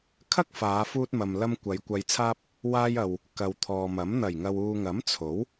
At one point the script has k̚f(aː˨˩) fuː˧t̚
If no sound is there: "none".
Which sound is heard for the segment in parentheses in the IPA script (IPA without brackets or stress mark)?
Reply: aː˨˧